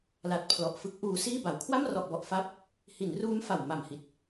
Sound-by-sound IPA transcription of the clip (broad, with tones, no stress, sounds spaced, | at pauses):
l a˨˩ t̚ pʰ l ɔ˨˩ ʔ f ɯ˦˥ k̚ ʔ uː˧ s iː˥˩ b a˨˩ w kʰ w a˥˩ m r ɔ˨˩ ʔ b ɔ˨˩ ʔ f a˦˥ p̚ | h i˩˦ n r uː˦˥ m f a˨˩ w m a˨˩ m h i˨˩ t̚